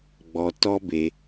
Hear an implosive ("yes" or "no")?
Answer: no